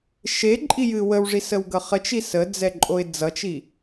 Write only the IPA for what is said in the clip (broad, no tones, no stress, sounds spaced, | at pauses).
ʃ e ǃʼ i j ɨ w ə w ʐ i s ə w ɡ ʌ χ ə t͡ʃ i s ə d͡z ɛ ǃʼ o ɪ̯ d͡z ʌ t͡ʃ i